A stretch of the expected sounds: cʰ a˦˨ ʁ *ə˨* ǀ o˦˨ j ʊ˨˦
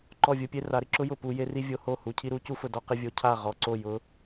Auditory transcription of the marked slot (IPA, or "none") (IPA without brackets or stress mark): ɔ˨